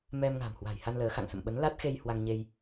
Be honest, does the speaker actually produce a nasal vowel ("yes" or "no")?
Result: no